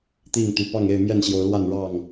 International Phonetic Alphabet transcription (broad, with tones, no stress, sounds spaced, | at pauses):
t̪ i˥˨ ŋ t̪ y˨˩ p ɑ˥˨ ŋ e˥˨ ɪ̯ m j ɛ˥˨ n ɕ j o˨˦ ʊ̯ l w a˥˨ n ɻ ɑ˥˨ ŋ